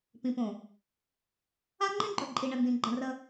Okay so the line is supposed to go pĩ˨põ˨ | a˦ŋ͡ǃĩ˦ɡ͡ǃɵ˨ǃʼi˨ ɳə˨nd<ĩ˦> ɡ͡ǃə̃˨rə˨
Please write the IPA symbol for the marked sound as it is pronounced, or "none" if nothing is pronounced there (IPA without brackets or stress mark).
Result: ĩ˨